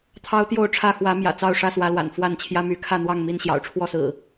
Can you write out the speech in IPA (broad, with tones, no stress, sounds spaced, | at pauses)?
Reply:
t̪ʰ ɑ˦ ʊ̯ t̪ j o˥˨ ʊ̯ ʈ͡ʂʰ ä˥˨ x w ä˨˦ m j ä̰˨˩ t͡s ɑ˥˨ ʊ̯ ʂ ä˥˨ s w ä˨˦ l w a̰˨˩ n f w a˥˨ n t͡ɕʰ j ä˦ m y˨˦ kʰ ä˥˨ n̪ w ɑ˥˨ ŋ m i˥˨ n ɕ j ɑ̰˨˩ ʊ̯ ʈ͡ʂʰ w ɔ˥˨ s ɹ̩˨˩